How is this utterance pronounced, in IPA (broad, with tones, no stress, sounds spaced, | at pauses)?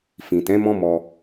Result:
f ĩ˨ t ɛ̃˨˦ m ɔ̃˦ m ɔ˧